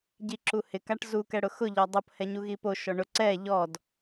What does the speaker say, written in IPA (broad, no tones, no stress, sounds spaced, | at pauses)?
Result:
ɟ i ǁ u h ɪ k a ʈ z u k ɛ ɽ ʊ x ʊ ʎ ɔ dˤ o p h ɛ ɲ u ɣ i p o ʃ ɔ ɳ ʊ ǀ ɛ ʎ ɔ d